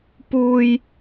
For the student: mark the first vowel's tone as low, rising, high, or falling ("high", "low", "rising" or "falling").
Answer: low